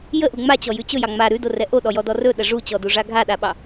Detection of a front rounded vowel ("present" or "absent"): absent